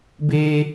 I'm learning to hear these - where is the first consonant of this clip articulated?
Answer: lips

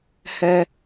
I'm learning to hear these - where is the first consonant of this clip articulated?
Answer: throat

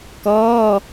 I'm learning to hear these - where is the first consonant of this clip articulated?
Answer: velum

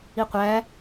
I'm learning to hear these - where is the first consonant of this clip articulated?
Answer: uvula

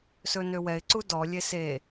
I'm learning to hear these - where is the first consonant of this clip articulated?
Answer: tongue tip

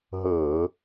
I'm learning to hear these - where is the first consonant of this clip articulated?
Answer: throat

